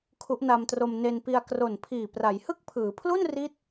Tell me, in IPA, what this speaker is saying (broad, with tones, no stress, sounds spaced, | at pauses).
kʰ u˦˥ ʔ n a˧ m t r o˧ m n e˧ n p i˧ a̯ k r o˨˩ n pʰ iː˨˩ p r a˩˦ j h ɯ˥˩ k̚ pʰ ɯː˩˦ pʰ l u˥˩ n r i˦˥ t̚